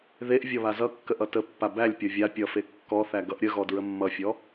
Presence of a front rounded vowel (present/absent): absent